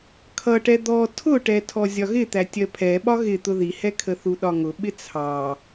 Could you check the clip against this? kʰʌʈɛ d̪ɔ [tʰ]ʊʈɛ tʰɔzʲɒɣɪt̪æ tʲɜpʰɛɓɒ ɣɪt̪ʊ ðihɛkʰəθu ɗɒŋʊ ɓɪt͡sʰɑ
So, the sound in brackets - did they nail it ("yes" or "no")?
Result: yes